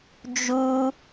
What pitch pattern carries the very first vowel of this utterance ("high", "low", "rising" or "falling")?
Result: high